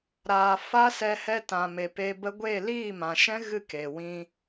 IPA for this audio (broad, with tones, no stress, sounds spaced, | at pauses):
ɾ aː˨ f a˦ s ɛ˧ h ɛ˧ t ã˨ m e˨ p e˧ b ə˦ ɡʷ e˦˨ l iː˦˨ m ã˨ ʃ ɛ̃˦ ɣ ɨ˦˨ k e˨ w ĩ˧